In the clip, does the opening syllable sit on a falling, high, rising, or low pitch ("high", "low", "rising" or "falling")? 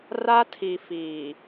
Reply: high